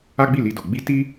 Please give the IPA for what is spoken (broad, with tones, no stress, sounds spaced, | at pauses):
a˦ ɡ͡b i˦˨ l i˧ d o˨ ɡ͡b i˧ t i˦